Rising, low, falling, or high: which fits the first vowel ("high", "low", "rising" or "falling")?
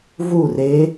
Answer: falling